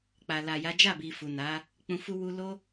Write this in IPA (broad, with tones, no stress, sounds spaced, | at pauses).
k͡p a˨ l a˨ j a˨˦ d͡ʒ a˦˨ b i˨ f u˨ n a˨˦ | k͡p ũ˧ f u˦ w u˦ l o˦